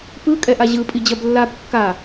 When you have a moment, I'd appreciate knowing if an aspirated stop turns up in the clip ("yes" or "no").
no